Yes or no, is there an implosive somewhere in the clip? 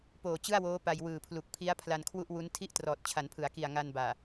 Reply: no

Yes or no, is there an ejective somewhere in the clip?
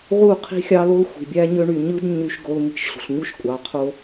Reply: yes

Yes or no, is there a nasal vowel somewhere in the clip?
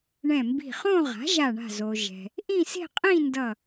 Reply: yes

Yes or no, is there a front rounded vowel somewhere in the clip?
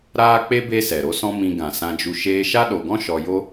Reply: no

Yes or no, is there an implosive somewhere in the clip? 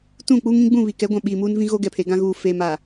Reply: yes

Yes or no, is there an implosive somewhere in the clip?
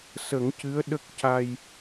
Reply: yes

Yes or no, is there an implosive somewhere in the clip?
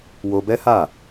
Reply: no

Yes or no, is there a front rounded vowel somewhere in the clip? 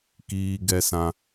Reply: no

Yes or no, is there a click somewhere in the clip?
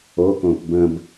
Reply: no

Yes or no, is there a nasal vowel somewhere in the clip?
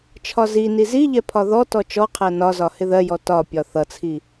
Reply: no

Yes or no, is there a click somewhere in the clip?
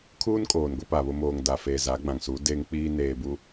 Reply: no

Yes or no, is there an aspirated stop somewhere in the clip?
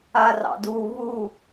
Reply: no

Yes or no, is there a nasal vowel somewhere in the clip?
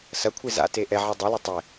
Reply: no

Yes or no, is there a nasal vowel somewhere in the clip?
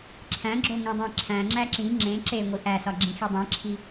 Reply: yes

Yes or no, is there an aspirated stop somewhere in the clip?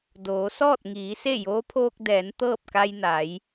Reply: yes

